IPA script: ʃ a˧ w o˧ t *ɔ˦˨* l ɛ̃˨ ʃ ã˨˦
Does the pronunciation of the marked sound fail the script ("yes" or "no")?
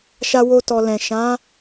yes